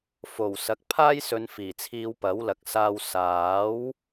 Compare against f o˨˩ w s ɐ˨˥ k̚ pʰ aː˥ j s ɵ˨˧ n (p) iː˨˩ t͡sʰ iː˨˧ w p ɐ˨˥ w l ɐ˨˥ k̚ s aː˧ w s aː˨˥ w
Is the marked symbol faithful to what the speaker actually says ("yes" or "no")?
no